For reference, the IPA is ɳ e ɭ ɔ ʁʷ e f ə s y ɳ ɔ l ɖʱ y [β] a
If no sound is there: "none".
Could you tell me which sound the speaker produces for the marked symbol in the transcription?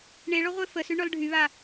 β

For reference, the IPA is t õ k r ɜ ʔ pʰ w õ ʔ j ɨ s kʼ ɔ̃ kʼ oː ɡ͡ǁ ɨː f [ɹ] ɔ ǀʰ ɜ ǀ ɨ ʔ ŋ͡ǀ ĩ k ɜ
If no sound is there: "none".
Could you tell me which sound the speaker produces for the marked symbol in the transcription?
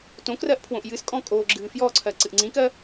j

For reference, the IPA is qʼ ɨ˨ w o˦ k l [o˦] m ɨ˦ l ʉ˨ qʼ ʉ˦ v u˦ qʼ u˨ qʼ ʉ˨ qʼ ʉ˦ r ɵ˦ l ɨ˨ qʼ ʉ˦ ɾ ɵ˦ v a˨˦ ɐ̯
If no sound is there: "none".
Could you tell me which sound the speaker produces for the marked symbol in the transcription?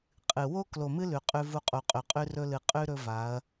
o˨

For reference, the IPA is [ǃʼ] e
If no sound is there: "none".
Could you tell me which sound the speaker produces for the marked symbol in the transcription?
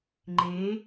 ŋ͡ǃ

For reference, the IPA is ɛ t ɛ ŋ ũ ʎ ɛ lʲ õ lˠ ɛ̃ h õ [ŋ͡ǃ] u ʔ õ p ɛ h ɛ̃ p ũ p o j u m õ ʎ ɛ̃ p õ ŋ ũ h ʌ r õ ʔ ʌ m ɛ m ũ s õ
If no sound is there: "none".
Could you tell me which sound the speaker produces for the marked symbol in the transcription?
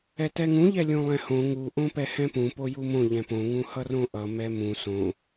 ŋ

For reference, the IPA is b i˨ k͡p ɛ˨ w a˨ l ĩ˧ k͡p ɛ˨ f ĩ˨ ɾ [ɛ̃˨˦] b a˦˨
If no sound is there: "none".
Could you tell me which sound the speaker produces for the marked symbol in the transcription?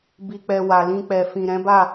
ɛ̃˨˦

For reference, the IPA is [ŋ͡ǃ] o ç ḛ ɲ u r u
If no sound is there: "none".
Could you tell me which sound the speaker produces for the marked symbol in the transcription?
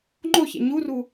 ŋ͡ǃ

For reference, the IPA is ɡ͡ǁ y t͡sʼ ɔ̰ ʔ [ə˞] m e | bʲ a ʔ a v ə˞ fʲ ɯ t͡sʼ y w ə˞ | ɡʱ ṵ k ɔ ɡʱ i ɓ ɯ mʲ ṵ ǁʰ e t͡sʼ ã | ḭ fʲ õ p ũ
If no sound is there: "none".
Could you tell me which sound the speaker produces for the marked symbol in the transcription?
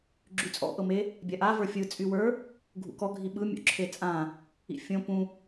ɤ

